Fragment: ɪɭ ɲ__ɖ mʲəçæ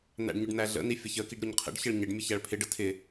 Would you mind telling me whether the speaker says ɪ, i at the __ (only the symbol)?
ɪ